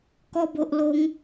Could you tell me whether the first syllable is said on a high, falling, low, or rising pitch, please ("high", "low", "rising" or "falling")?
high